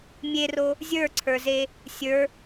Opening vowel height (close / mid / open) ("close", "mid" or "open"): mid